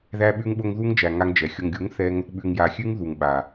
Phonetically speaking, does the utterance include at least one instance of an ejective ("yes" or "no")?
no